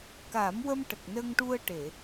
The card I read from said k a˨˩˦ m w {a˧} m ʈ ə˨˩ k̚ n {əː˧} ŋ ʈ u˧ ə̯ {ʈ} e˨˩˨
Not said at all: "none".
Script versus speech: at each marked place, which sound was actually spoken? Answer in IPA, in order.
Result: ə˧, ə˧, ʈ

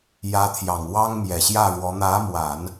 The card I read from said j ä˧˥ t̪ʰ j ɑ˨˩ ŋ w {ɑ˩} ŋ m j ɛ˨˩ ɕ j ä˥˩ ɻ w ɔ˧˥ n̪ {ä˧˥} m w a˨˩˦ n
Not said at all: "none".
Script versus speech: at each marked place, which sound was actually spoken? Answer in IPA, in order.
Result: ɑ˥, ä˧˥

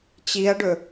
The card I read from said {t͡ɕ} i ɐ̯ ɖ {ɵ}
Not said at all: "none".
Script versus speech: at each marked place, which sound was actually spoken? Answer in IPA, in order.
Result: t͡ɕ, ɵ

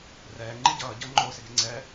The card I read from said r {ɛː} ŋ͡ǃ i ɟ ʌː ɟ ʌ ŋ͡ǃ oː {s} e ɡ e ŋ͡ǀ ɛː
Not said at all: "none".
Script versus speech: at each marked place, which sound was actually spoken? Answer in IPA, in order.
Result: ɛː, s

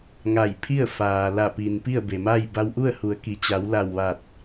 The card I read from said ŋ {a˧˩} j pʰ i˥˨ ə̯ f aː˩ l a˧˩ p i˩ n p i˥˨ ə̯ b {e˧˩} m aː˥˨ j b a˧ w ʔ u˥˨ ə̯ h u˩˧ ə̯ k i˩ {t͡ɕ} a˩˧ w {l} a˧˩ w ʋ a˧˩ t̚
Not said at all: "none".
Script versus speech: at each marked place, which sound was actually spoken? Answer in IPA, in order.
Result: a˧˩, e˩, t͡ɕ, l

